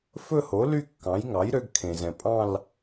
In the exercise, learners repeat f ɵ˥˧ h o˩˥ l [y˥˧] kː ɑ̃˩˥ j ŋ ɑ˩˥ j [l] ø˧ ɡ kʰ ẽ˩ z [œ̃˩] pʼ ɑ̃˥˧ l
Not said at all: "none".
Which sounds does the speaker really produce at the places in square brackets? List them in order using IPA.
y˥˧, ɾ, ɛ̃˩

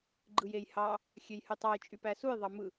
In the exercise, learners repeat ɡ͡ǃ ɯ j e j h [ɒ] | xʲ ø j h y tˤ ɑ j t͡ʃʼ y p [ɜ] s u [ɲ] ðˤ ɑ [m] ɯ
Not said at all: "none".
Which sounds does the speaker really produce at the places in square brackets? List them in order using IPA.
ɑ, æ, j, m

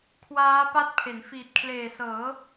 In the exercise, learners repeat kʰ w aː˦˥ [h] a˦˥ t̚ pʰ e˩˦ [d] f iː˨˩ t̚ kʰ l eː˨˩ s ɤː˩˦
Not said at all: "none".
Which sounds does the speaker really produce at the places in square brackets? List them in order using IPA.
p, n

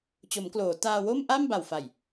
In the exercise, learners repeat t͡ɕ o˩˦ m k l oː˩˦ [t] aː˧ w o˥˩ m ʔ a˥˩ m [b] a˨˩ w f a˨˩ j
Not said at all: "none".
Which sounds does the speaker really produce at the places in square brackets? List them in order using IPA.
t, b

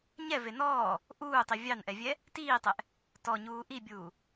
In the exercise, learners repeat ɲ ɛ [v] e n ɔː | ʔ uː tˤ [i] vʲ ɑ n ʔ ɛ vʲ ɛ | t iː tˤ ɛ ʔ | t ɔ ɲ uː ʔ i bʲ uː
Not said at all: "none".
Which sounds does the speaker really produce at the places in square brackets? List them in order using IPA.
v, i

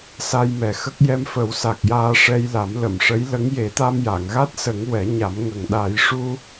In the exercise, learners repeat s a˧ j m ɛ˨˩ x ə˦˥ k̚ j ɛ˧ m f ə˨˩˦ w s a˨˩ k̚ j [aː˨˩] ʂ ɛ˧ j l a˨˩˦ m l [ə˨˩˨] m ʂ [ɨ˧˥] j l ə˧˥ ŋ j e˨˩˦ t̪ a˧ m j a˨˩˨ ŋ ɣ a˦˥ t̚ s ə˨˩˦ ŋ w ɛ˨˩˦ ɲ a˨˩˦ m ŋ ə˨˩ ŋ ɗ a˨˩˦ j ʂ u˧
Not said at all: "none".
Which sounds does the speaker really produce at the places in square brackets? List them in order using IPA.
aː˧, ə˨˩˨, ə˧˥

